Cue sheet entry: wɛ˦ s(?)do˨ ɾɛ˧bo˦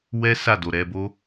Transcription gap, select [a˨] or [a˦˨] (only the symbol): a˦˨